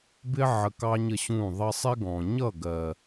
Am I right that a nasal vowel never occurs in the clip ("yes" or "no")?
no